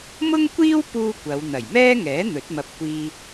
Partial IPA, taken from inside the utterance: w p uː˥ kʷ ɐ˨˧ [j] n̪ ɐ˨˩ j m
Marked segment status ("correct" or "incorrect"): incorrect